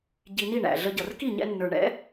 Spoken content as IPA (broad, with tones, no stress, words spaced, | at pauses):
ɟi˧ni˦˨ɳæ̰˨ ɮə˧ɟʌ˨r ki˦˨ɲɛ̰˧nːə˞˨ɳɛ̰˨˦